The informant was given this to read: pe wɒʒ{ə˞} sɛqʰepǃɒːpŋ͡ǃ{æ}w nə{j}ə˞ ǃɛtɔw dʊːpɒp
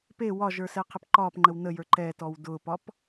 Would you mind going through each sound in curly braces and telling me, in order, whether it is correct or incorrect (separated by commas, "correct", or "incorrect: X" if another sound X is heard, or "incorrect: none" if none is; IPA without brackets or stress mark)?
correct, incorrect: ə, correct